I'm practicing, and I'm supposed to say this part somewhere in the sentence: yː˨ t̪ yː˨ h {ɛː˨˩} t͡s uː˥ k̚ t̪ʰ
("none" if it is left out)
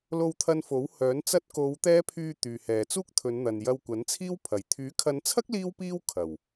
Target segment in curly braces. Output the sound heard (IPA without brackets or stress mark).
ɛː˨